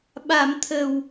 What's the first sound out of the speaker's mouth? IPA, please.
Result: ɓ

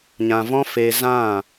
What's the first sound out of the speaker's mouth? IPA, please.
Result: ɲ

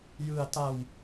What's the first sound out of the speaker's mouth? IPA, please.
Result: j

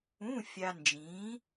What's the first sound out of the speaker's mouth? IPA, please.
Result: ũ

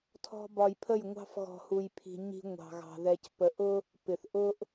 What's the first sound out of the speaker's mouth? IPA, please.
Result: tʰ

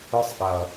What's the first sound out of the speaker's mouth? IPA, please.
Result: ɯ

